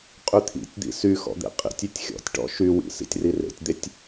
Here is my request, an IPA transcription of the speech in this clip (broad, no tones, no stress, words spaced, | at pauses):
qʼyt̪ʰḭtʲd̪ḭ sy xɔ̰d̪ḛqʼḭtʲytʲ xʲɔ̰tʲʈɔ̰ ʃywḭ sḭtʲrirḛtʲd̪etʲ